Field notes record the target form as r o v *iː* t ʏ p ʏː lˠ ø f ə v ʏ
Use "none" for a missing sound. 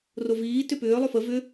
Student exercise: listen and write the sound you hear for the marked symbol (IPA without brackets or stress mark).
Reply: iː